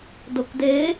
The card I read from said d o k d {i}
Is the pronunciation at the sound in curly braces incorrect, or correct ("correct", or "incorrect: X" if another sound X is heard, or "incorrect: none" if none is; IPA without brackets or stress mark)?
incorrect: e